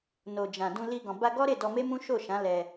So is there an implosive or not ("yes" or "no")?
no